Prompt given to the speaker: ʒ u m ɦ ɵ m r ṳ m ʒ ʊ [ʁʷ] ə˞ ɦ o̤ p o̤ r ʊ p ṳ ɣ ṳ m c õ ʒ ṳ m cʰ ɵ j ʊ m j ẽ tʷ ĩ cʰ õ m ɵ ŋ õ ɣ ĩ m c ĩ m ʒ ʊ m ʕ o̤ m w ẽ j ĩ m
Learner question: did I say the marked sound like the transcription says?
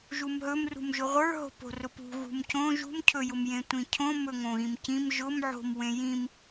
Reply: yes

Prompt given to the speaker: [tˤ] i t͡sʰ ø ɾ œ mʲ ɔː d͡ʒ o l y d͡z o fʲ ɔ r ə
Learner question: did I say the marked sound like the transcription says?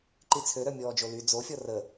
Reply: no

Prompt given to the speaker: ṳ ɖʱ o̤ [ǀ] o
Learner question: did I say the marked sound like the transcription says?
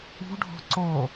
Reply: yes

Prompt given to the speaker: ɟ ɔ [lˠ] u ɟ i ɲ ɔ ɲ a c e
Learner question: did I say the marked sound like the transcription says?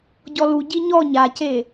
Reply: no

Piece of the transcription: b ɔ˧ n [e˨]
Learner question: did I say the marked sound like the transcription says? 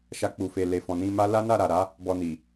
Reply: no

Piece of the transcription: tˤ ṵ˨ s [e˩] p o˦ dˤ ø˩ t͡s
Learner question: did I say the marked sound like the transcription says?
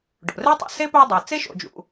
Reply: no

